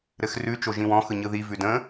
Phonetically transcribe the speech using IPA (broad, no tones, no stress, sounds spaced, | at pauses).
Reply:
ɾ ɘ x r ʉ t͡ʃ o ʒ ĩ w ɔ̃ x ɯ ɲ ɯ ð i v ʉ d ə̃